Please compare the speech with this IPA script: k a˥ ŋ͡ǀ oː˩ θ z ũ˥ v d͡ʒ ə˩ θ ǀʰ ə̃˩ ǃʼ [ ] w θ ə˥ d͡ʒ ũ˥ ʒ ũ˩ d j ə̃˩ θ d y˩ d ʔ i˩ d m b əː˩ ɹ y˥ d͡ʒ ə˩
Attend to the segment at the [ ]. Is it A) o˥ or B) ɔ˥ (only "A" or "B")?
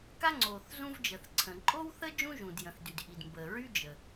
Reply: A